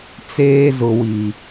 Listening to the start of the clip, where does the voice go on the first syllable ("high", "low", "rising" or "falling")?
high